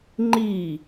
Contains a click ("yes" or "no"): yes